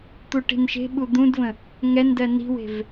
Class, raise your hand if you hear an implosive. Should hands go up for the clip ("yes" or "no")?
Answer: yes